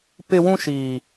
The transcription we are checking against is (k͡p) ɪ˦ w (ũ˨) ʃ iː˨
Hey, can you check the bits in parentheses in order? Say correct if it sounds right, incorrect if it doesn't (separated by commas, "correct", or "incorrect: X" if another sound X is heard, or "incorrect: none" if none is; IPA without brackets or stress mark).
incorrect: p, incorrect: ũ˦